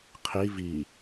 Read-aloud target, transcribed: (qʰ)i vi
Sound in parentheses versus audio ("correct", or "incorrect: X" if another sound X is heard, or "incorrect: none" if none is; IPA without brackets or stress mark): correct